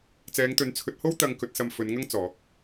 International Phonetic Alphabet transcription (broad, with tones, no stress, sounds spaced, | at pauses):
t͡s ɛː˨˧ ŋ t̪ ɵ˨˥ n t͡sʰ ɵ˨˥ t̚ h o˥ w t̪ ɐ˧ ŋ k ɵ˨˥ t̚ s ɐ˧ m f ɵ˨˧ n ŋ ɐ˥ ŋ t͡s ɔː˨˥ k̚